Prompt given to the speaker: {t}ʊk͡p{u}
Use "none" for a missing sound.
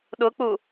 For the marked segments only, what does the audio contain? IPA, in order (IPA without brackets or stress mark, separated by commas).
ɗ, u